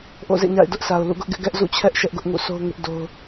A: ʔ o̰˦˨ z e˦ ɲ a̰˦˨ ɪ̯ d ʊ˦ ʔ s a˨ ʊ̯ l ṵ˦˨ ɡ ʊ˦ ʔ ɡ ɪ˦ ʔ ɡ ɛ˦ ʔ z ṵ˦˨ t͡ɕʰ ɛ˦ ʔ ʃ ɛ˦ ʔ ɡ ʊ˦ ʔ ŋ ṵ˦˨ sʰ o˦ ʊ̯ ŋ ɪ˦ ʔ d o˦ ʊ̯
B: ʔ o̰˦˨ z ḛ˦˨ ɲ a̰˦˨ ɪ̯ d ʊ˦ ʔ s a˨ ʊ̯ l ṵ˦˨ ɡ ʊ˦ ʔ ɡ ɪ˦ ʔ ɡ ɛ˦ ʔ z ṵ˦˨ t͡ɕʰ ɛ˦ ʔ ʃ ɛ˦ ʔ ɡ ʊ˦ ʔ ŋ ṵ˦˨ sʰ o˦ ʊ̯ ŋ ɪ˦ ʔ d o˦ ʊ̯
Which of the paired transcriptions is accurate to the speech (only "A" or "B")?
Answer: B